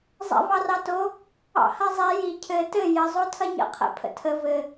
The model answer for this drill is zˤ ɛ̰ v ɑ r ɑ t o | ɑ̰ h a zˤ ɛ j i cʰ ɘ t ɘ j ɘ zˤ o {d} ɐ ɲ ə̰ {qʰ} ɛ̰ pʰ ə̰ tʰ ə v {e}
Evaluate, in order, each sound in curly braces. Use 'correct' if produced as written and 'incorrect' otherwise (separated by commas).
incorrect, correct, incorrect